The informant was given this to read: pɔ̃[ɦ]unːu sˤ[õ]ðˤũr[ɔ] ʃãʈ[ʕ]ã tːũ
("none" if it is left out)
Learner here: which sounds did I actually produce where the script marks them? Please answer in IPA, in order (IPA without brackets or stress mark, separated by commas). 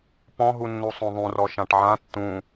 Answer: ɦ, õ, ɔ, ʕ